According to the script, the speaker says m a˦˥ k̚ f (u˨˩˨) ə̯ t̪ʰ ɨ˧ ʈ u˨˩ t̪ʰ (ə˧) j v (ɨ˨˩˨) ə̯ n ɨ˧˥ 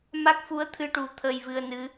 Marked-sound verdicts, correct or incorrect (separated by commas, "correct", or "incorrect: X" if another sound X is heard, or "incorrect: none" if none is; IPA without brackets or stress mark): incorrect: u˧˥, correct, incorrect: ɨ˧